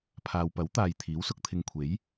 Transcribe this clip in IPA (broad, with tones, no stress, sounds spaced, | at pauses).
pʰ aː˨ w p ɐ˨˥ w t̪ aː˨ j t̪ʰ iː˨˥ w s ʊ˧ k̚ t̪ʰ ɪ˧ ŋ kʷʰ e˨˥ j